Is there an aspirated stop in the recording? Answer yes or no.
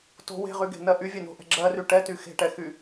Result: no